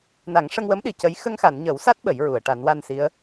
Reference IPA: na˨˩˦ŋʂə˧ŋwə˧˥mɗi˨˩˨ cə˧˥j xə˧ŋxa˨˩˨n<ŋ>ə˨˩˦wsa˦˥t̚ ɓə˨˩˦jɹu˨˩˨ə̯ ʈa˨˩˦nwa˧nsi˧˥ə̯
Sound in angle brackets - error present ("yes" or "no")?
yes